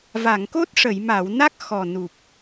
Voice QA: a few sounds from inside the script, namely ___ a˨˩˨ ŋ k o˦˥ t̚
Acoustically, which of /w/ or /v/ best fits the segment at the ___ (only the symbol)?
v